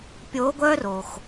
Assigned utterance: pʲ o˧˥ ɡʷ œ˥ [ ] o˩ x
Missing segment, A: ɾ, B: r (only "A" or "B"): B